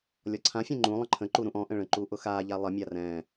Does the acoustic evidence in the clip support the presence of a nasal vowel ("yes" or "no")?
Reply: yes